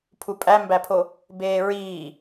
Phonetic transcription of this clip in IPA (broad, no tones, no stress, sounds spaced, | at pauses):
pʰ u pʼ æ m b æ pʰ o | b eː ɹ iː